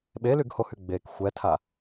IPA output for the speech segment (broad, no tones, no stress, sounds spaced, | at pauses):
ɓ e l y ɡ h o h y ɡ͡b e k xʷ ɛ tʰ a